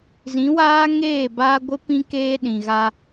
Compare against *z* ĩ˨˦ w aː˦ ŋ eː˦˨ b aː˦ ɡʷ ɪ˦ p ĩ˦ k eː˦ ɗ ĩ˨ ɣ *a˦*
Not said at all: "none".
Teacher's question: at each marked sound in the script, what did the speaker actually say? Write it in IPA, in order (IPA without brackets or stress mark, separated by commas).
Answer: z, a˦